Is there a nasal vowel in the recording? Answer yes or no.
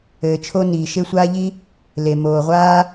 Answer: no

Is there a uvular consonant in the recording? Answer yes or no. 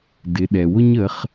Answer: yes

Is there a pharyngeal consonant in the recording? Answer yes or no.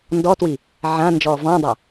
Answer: yes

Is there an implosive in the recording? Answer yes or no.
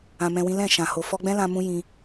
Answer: no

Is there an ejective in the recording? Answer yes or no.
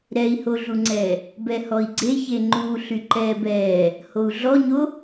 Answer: no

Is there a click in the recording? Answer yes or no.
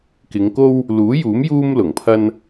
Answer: no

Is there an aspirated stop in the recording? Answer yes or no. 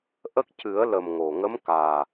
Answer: no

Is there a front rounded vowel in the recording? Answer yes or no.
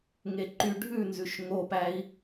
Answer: yes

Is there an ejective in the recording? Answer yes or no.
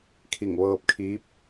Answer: no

